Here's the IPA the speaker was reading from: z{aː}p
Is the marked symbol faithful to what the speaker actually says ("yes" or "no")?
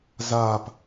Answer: yes